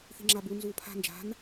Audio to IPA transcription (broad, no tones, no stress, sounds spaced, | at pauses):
θ i̤ ŋ͡ǁ a b u n z uː pʰ a̤ n d͡ʒ a̤ n